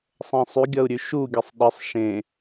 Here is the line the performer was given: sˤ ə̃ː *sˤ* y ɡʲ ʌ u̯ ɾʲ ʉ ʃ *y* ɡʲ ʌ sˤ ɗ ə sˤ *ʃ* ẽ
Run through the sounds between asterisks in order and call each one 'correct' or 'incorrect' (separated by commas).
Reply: correct, incorrect, correct